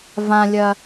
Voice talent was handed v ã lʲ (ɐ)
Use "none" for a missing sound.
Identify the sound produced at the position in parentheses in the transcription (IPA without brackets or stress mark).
ɐ